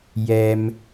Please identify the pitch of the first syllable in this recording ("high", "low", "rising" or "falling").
low